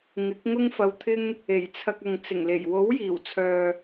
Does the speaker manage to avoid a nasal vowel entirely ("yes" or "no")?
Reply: yes